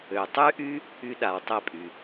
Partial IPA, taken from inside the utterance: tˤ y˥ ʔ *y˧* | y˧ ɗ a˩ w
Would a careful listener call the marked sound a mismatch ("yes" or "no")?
yes